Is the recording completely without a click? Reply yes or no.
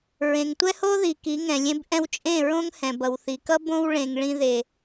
yes